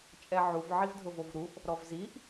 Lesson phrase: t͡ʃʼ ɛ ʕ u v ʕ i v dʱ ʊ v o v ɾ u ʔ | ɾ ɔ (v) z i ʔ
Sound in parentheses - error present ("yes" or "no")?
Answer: no